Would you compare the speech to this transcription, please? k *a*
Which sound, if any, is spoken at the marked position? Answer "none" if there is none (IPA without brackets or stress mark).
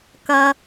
ɐ